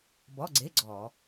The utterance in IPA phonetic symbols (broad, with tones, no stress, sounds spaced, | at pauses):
b ɔ˧˥˧ ɡ͡ǀ e˧˥˧ ɡ͡ǀ ɔ˧˩˧